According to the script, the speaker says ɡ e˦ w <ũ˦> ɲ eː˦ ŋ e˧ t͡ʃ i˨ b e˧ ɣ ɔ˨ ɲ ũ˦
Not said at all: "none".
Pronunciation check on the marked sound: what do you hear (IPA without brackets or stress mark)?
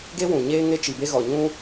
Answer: ũ˨